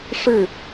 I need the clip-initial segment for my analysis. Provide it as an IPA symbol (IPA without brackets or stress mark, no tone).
ʂ